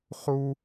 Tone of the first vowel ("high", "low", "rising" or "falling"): high